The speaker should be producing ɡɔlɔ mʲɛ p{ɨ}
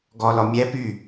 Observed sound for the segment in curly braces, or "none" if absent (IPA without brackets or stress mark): y